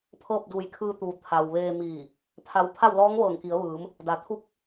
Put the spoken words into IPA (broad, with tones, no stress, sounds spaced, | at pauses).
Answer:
pʰ ɤː˥˨ p̚ d uː˧˩ j kʰ ɯː˧ t̪ uː˩˧ t̪ʰ a˩ w ʋ eː˧ m iː˧˩ | pʰ a˧˥ w pʰ a˥˨ w l ɔː˧˥ ŋ ʋ ɤː˧˩ ŋ k i˩˧ ə̯ ʋ ɯː˩˧ m | d a˩˧ t̪ʰ u˧˥ k̚